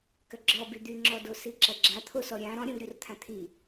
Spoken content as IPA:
k ɐ ɡ͡ǁ ɔ b y d̪ y ŋ͡ǁ ɔ d o s i ǁ ɐ ɡ͡ǁ a t̪ʰ o s ɔ ɾʲ ã ɾ ɔ̃ ɾʲ ɔ̃ v ɾʲ u r t̪ʰ ã t̪ʰ i

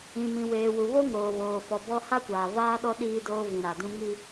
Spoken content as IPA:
ĩ˨ m ĩ˨ w eː˨ w u˨ β o˦ ŋ oː˨ β oː˨ f ɔ˨ b ɔ˦ h a˦ kʷ aː˨ v aː˦ ɗ ɔ˦ ɗ iː˦ d oː˦ v ĩ˨ ɾ a˨ d ũ˦ ŋ i˦

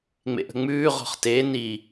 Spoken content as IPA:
ŋ͡m ḛ ʔ ə̤ ŋ͡m ʉː ʁ ɔ̤ χ t e n i

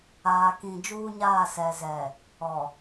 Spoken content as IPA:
aː˨ k ĩ˨ d͡ʒ uː˦ ɲ aː˦˨ s ɛ˨ z ɛ˨ | ɔ˨

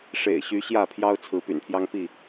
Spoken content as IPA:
ʂ ḛ˨˩ ɪ̯ ɕ y˨˦ ɕ j ä˥˨ pʰ j ɑ˦ ʊ̯ t͡sʰ ɹ̩˨˦ p y̰˨˩ n pʰ j ɑ˦ ŋ p i˥˨

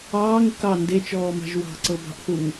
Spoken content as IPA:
ɑː ŋ ə k ɑ n d e t͡ʃ ɔː m ɑ̤ ʒ w ɑ̤ ǀ ɤ b ɑ̤ ʔ θ u ŋ

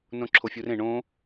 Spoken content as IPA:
n õ ǁʰ o fʲ u r ẽ ɳ õ

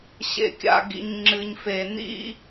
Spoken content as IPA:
ɕ ḛ˩ kʲ a̰˩ ɡ ḭ˩ ɲ ŋ͡ǁ ɨ˩ ɲ f e˩ n ḭ˥

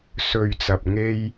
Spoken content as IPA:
s ɵ˨ ɥ t͡s ɐ˨ p̚ ŋ e˧ j

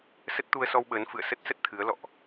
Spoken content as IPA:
s ə˦˥ t̚ t̪ u˧ ə̯ s ɔ˧ w ɓ əː˨˦ n f ɨ̰˧˨ ə̯ s ə˦˥ t̚ s ə˦˥ t̚ t̪ʰ ɨ˨˦ ə̯ l ɔ̰˧˨ ʔ

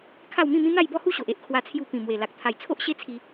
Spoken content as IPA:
kʰ a˥˧ w m ĩ˥˧ m ĩ˦ n̪ a˥˧ j b ɔ˥˧ h u˥˧ ɕ o˨ ʔ e˦ ʔ kʰ w a˧ t͡sʰ j u˧ p ĩ˨˩ m w e˨˩ l a˨ k̚ t̪ʰ a˨˩ j t͡sʰ o˦ ʔ ɕ e˦ t͡sʰ i˧

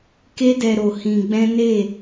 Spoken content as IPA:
k e˦ d ɛ˧ ɾ o˧ h ĩ˧ ɡ͡b ɛ̃˦ n e˦˨

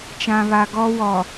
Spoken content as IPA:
t͡ʃ ã˨ β a˨ ɡ ɔ˦ w ɔ˨

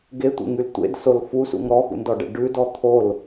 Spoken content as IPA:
ɡ e tʷ ḛ ŋ y l tʷ ḛ d s o l f u s ṵ ŋ ɾ ɔ x ṵ n d ɔ ɖ ɛ̰ ɖ ʉ d ɔ t̪ʰ o l

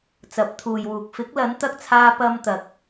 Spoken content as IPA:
t͡s ɐ˨˥ p̚ t̪ʰ uː˨ j w uː˨ k̚ f ɪ˨˥ k̚ l ɐ˨˥ n t̪ ɐ˧ k̚ t͡sʰ aː˧ p ɐ˥ m t̪ ɐ˨ k̚

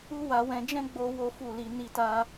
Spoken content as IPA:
u˦ w a˧ w ɛ̃˧ d͡ʒ ɛ̃˦ ɡ͡b o˦ w o˦ f u˦˨ l i˧ n i˧ t a˧

